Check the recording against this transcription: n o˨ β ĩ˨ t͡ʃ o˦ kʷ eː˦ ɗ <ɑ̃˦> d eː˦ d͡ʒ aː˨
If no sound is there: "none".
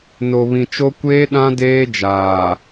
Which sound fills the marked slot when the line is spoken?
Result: ã˦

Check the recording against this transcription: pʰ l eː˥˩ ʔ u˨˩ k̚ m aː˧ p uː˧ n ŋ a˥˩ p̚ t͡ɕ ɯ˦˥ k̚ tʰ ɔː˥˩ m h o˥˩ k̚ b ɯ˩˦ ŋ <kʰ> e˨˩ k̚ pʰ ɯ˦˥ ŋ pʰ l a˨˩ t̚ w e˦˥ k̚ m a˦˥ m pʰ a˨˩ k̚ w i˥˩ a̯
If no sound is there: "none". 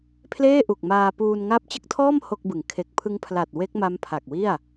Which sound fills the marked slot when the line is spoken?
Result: kʰ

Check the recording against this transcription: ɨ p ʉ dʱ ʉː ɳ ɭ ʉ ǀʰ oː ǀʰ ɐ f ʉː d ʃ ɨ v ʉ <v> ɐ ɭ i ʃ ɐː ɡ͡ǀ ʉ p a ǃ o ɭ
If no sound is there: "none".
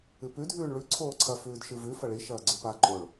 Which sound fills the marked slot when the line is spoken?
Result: f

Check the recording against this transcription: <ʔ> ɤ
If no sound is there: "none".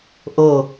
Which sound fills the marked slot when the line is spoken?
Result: ʔ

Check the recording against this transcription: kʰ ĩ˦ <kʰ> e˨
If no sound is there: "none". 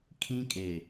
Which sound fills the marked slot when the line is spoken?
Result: kʼ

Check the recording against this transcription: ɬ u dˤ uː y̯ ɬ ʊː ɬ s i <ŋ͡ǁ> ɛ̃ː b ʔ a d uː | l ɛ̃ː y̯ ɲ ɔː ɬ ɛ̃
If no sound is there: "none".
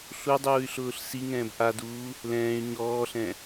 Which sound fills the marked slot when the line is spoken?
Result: ŋ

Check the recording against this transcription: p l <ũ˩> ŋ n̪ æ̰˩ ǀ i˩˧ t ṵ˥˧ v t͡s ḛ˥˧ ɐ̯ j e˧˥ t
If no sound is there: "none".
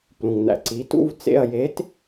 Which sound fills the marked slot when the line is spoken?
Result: ũ˩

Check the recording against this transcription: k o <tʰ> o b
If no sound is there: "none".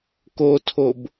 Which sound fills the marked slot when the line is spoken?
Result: tʰ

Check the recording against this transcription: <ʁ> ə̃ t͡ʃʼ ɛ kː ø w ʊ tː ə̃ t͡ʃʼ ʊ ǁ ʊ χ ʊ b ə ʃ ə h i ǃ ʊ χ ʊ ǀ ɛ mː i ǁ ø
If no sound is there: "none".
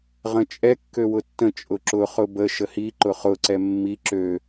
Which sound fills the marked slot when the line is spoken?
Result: ʁ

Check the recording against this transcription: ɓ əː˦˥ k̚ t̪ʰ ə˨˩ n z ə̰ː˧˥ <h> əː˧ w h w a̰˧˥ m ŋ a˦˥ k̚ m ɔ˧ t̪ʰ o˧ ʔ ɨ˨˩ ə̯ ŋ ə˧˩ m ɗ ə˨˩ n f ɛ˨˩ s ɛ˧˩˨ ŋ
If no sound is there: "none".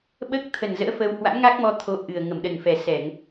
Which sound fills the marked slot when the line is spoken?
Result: f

